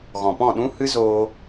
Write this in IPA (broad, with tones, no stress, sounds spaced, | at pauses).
ɣ ɔ̃˨ p ɔ̃˦˨ ɗ ũ˦ h ɨ˦ z oː˧